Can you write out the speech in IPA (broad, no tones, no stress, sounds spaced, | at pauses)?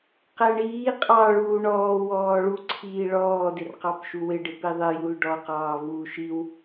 q æ ɳ iː qʼ ɑ ɭ uː ɳ ɔː w ɔː ɭ u ǀʰ iː ɭ ɔː d ɪ r q ɑ p ʃ u w ɪ ɖ ɪ p i ðˤ ɪ j u l ɖ ɔ q ɑː v uː ʃ i w